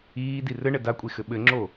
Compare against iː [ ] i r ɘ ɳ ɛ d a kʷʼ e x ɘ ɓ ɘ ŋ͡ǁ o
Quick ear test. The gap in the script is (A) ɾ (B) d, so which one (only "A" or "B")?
B